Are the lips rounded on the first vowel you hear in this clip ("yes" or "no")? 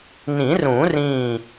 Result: no